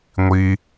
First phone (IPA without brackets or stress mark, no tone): ŋʷ